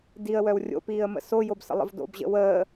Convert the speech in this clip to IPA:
d i ə̯ w œ w rʲ o̰ p iː ə̯ m ə̰ s o j o b s ə̰ lˠ ə̰ v d o̰ b ʑ ə̰ w əː

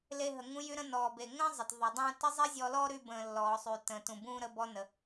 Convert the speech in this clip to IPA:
l e˧ ɦ ə˩ ŋ ũ˧ j y˧ ɾ ə̃˧ n ɔː˩ b e˩ ŋ ə̃ː˥ zˤ ə˩ t ðˤ y˩ dˤ ũː˧ t ə˥ zˤ i˥ zʲ ɔ˧ l ɔː˥ ɾ y˧ b ə̃ː˩ lː ɔː˩ sˤ y˩ t ə̃ː˩ t ũ˩ b ũː˧ ɾ ə˧ b ɔ˧ n ə˩

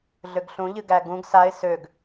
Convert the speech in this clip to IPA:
ɮ ø ɡ ɬ ũ ʎ ɨ ɡ æ ɡ ũ ɡ s a ɪ̯ s ø ɡ

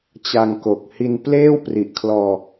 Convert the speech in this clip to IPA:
t͡ɕ a˧ ŋ k o˨˩ k̚ h i˧ n p l eː˥˩ w p r i˨˩ ʔ kʰ l ɔː˧

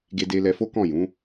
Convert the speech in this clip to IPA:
ɡ e˧ d e˧ l ɛ˧ f o˦ k ɔ̃˦˨ j ũ˨˦

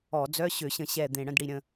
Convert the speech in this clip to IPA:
ɔ˧˩˧ d͡z œ˧˥˧ ɕ ø˧˩˧ ɕ ə̃˧˩˧ ɕ ɛ˨˩ d̪ ẽ˨˩ ɽ ə̃˧˥˧ d ɽ i˨˩ ɾʲ ə̃˨˩

